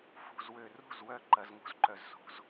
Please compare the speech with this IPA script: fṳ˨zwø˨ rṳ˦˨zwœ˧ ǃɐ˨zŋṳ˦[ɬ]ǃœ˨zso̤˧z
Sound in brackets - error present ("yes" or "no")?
yes